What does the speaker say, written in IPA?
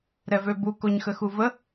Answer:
ɾɛvøbu koɲxəxuvə

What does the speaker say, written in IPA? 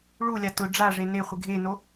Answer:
ɭulʲa tʊ ɖ͡ʐaʐe neχʷɪ ɡʱeno

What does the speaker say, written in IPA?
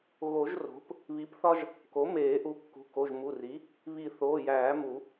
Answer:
ɣo˨˩˦ʒ ro̤˩˥p | βi˩˥pθɒ˦ʒ | ko˩˥meː˨˩˦ ʔu˩˥kːṳ˩˧˩ ko˩˧˩ʒmu˩˧˩ri˩˥ | βi˨˩˦θoː˩˧˩jæː˨˩˦mu˨˩˦

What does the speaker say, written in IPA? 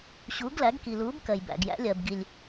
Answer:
ɕuː˩˧ɡlæ˩˧ɡki˩luː˩˧b kɜ˩jbæ̰˩ɡ jæ̰˩˧lʲɜ˩bɡi˩lʲ

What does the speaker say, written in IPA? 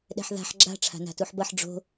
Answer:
ɗɛ̤ħða̤ħ ɡ͡ǁa̤ ʈ͡ʂʰa̤na̤tuħbʌħ ɖ͡ʐo̤

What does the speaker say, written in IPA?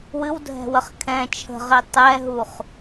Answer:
wɨwdʱɛ̤wəχ kʰɛ̃ t͡ʃʰə̤ʁi tˤɛɦuχ

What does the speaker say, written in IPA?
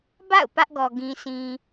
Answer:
ba̰˦˨ʊ̯ pä˦ʔɡɔ˨ ɡĩ˨sʰĩ˨

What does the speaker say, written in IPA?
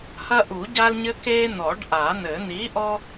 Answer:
hɐ˦ʔu˨˩˦ɟa˦lɲɘ˦ ke˦ n̪ɔ˨˩˦ɖʔa˨˩˦n̪ɘ˨˩˦ n̪i˨˥ʔɔ˦

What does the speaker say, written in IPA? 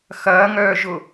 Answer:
xɐːŋœːʒʊ

